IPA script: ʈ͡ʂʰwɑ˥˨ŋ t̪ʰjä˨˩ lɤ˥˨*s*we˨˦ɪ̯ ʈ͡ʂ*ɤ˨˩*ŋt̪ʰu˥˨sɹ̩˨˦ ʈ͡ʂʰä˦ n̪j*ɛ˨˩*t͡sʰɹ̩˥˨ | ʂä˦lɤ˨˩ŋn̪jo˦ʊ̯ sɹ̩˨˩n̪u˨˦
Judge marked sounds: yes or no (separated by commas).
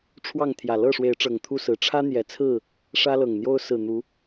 no, yes, yes